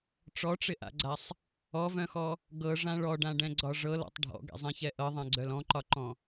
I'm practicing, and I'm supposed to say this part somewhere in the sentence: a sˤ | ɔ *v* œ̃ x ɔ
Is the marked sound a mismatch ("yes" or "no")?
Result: no